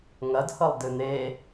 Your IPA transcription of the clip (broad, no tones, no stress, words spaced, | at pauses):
ŋɐdhɤlˠ dɨn̪e